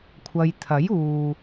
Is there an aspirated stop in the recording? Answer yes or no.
yes